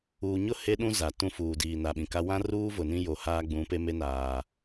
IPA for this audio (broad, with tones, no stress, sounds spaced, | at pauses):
uː˨ ɲ ʊ˦˨ h e˦ ɗ ũ˦ z a˨ t ũ˦ f uː˨ d iː˨ n a˨ ɓ ĩ˨ k a˦ w ã˦ r uː˦ v ʊ˨ n ĩ˦ j o˨ h aː˦ ɡ͡b ũ˨˦ p e˦ m e˦ n aː˨